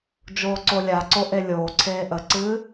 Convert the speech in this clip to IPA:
d͡ʒ oː ǀ o lʲ a ǀ o ʔ e lʲ oː ǀʰ eː ʔ ə ǀ ɨː

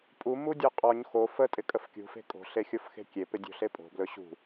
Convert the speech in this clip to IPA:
pʼ u m u dʲ ɔ qʼ ɔ ɲ x o f ə tʼ ɪ kʼ ə f kʲ ṳ f e̤ kʼ o̤ ɬ e xʲ o f x e̤ kʲ e p ɪ dʲ o̤ ɬ e pʼ o̤ b l ɵ ɕ ṳ

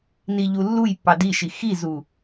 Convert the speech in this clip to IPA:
n i ʎ u lː u j pː ɑ d i ʃ i x i z u

